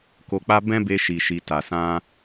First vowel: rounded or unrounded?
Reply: rounded